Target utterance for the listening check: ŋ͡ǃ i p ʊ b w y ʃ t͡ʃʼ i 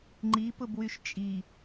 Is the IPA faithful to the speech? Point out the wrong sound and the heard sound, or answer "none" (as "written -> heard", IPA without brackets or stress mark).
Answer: none